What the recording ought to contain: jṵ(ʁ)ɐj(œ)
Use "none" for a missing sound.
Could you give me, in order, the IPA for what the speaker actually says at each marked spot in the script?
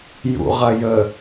ʁ, ə

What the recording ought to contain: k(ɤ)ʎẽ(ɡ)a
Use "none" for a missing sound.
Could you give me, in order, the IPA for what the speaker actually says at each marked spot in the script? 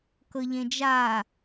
ɤ, d͡ʒ

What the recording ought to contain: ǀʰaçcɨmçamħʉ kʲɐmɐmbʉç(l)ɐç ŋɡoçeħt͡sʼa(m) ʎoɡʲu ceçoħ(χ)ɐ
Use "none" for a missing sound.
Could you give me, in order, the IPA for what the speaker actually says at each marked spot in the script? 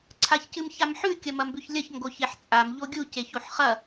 lʲ, m, χ

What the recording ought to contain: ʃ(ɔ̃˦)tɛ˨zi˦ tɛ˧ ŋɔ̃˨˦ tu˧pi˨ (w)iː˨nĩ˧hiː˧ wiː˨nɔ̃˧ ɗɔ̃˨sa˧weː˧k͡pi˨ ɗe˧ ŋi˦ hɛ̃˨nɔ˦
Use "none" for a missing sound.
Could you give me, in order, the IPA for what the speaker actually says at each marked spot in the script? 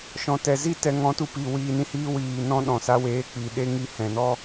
ɔ̃˨, w

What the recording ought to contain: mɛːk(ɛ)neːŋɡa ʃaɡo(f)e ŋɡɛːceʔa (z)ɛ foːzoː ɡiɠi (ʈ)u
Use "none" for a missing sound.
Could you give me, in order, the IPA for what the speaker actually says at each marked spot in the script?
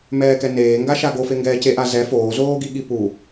ɛ, f, z, p

